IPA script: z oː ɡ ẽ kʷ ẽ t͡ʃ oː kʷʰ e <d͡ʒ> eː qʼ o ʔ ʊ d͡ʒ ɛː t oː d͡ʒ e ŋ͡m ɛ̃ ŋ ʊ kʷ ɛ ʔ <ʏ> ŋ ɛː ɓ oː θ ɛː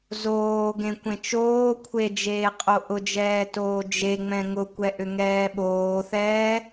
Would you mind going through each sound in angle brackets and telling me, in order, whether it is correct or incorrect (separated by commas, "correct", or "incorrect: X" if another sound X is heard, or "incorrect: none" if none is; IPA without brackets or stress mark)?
correct, correct